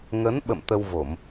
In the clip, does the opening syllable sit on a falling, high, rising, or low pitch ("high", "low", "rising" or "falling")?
rising